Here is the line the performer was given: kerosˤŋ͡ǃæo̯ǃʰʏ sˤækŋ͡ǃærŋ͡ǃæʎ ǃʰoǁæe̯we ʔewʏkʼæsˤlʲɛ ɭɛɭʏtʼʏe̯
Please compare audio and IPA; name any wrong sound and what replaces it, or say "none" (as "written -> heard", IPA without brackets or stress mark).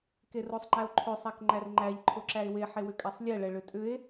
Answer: ʔ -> ħ